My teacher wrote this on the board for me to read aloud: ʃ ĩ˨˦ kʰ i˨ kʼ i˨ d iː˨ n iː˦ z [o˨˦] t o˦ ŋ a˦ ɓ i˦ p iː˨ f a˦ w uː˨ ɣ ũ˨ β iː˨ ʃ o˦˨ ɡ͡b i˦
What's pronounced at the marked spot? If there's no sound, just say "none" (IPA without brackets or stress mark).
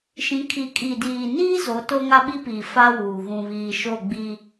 o˨˦